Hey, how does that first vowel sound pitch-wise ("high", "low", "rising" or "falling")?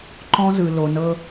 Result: high